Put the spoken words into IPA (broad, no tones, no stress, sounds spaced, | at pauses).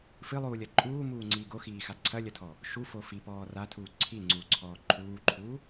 f ɨ lˠ uː lʲ ɐ ǃʼ uː m uː ŋ͡ǀ iː ɡ o x iː x a ǀʰ ɐ lʲ ɐ tʰ ɔ | ʃ u f o f i p ɔː r a tʰ uː ǀʰ i ŋ͡ǀ uː ǀʰ ɔː ǃʰ uː ǃʰ u